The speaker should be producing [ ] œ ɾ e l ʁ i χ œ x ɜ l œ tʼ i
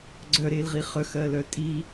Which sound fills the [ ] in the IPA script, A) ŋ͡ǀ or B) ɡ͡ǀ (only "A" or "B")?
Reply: B